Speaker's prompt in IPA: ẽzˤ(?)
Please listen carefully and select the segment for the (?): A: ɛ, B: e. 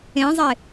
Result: B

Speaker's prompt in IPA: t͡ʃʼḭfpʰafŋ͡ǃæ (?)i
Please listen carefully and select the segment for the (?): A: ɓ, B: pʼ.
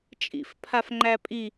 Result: B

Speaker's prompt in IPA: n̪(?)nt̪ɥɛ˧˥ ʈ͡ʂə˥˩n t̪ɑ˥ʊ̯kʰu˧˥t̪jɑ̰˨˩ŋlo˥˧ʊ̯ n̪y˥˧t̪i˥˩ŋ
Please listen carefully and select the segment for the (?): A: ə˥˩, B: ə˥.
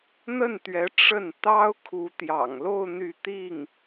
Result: A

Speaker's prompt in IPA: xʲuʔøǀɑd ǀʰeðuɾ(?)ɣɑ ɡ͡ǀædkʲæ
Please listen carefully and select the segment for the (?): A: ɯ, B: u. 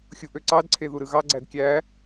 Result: A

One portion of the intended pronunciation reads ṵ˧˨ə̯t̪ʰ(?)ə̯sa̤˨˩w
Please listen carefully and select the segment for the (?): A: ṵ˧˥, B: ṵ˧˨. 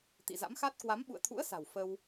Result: A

